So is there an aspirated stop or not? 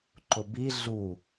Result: no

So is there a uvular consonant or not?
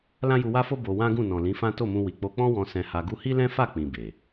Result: no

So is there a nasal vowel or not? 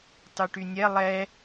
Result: no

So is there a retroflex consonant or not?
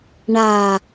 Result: yes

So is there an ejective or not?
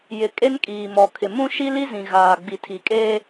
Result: yes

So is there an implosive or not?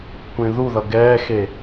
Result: no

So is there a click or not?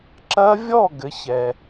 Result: yes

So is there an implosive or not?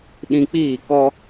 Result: yes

